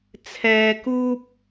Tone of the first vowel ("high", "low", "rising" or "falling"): low